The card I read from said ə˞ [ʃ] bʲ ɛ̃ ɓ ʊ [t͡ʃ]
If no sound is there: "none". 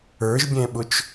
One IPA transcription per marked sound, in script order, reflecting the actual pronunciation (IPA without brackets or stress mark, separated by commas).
ʒ, t͡ʃ